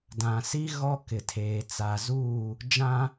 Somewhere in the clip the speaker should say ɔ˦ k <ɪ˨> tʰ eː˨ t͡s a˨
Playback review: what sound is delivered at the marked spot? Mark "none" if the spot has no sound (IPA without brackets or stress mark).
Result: ɪ˨